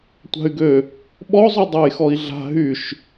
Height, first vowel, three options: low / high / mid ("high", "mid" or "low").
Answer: low